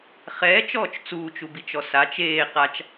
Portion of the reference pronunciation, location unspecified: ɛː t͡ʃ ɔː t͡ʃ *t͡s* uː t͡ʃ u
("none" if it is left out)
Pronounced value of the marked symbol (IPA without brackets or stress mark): t͡s